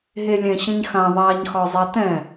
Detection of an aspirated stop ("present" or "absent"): absent